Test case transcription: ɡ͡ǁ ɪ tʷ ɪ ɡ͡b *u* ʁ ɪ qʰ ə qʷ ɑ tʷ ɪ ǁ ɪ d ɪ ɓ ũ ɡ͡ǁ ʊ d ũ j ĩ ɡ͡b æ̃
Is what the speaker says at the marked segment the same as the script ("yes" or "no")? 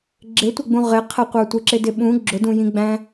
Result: no